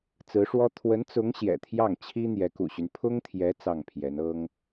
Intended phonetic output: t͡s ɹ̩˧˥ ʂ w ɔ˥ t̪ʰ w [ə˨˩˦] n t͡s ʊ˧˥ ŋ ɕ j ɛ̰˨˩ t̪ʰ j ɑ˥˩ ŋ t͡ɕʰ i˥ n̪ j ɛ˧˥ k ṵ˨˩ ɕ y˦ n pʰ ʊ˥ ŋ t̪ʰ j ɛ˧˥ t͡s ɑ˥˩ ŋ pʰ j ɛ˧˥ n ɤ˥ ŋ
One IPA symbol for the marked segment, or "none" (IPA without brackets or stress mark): ə˧˥